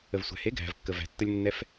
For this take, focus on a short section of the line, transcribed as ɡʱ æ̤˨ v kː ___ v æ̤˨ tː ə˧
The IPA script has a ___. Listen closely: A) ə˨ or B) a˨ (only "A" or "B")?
A